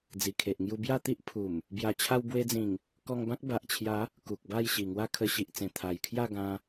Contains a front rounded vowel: no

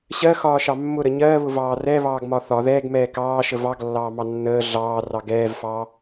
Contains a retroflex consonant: no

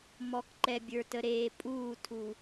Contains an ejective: yes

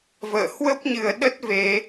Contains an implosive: yes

